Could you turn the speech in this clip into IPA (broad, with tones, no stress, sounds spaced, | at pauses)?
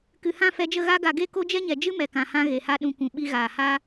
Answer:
k ɨ˨ h ã˦˨ f ɛ˧ d͡ʒ ə˦˨ ɣ a˧ ɡ a˨ ɡ e˦˨ k o˦ d͡ʒ ɛ˦ ɲ ɛ˨ d͡ʒ ɨ˦ m ɛ˨ k ã˨ h ã˧ ɣ e˨ h a˧ ɗ ũ˨ kʷ ũ˨ ɓ i˧ ɣ aː˨ h a˦